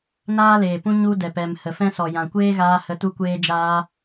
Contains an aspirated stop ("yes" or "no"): no